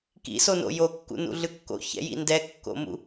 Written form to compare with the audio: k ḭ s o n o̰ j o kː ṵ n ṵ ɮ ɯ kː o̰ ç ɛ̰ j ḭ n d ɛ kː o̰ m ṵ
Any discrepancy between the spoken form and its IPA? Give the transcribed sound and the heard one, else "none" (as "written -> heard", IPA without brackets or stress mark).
none